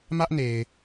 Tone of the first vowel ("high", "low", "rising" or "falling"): high